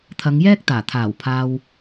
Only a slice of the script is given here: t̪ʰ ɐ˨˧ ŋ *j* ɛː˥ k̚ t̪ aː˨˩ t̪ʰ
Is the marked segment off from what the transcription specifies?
no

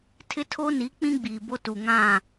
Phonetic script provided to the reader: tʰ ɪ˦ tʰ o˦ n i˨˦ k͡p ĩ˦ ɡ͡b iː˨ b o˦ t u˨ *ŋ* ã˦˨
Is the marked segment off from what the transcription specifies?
no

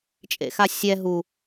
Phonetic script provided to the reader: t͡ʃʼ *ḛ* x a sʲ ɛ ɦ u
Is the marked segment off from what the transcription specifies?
no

